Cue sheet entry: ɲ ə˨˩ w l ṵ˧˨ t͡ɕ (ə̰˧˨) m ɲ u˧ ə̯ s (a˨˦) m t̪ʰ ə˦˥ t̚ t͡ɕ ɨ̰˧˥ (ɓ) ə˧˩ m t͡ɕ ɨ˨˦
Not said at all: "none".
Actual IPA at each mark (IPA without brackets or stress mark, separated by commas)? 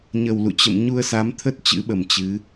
ə̰˧˨, a˨˦, ɓ